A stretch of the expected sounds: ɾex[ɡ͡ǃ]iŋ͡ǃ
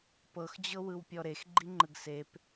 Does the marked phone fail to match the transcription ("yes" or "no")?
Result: no